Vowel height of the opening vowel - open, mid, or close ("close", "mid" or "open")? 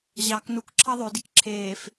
open